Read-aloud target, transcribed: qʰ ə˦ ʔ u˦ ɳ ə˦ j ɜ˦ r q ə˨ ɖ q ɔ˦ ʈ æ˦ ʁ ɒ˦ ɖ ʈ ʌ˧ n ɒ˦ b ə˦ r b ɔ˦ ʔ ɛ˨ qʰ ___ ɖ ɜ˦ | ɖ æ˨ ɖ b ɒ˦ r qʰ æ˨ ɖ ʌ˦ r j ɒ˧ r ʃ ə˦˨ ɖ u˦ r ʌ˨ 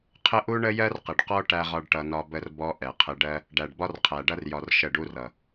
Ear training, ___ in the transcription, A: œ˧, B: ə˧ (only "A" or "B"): B